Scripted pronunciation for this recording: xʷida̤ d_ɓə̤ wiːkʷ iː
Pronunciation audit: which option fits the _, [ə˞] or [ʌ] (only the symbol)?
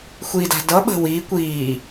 ʌ